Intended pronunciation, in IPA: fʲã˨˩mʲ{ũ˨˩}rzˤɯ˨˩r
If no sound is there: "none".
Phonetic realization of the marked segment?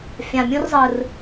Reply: ũ˦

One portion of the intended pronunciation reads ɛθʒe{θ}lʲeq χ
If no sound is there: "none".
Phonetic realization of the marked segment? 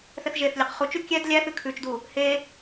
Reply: θ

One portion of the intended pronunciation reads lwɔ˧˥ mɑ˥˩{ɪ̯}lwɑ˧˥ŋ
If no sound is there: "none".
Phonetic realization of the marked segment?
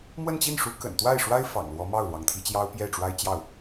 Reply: ʊ̯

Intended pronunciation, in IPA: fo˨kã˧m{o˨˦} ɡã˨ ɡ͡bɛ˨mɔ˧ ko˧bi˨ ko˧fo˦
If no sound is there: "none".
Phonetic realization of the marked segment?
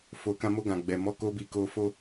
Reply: o˧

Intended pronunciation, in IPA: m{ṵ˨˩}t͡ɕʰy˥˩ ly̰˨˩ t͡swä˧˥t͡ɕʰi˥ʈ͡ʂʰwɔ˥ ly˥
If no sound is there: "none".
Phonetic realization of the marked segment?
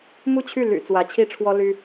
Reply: u˥˧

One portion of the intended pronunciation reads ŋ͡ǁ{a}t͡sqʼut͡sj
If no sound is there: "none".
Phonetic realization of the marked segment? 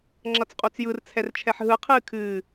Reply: ʌ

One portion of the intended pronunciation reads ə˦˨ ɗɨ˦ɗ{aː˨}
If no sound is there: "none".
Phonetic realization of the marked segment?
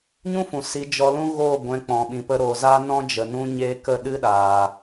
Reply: aː˨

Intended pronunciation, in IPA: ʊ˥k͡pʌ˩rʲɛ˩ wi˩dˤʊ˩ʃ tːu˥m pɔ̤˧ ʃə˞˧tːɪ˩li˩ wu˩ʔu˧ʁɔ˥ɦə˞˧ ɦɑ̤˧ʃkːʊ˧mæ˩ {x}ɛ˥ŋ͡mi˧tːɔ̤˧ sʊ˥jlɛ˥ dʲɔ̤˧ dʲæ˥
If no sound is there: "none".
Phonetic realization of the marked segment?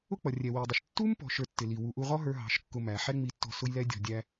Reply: ħ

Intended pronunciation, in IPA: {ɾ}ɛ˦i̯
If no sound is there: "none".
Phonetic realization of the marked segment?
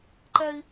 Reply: ǃ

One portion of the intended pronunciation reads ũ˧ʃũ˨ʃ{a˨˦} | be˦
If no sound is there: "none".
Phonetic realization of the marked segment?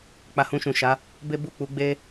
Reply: a˨˦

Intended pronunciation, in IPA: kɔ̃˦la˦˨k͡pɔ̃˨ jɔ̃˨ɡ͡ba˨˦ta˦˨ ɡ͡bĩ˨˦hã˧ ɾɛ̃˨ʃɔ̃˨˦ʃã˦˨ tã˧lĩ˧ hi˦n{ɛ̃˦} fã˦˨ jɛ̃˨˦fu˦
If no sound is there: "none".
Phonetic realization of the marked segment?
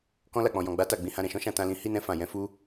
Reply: ɛ̃˦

